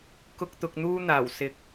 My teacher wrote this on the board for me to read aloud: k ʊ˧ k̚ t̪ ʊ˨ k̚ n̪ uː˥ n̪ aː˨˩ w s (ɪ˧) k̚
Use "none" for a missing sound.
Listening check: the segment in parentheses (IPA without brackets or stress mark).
ɪ˨˥